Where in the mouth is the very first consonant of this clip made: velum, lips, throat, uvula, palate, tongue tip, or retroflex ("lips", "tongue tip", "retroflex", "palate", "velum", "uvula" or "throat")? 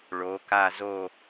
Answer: retroflex